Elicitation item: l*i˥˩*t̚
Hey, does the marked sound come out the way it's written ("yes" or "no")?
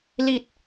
no